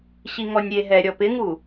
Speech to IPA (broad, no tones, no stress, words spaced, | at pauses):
ɕiŋɔnʲɾʲeɦɛ ɾʲɔpɪŋu